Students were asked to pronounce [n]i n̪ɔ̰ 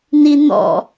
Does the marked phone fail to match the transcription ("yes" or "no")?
no